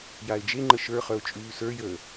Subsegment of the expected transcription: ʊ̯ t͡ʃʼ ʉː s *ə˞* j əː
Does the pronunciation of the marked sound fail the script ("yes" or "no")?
no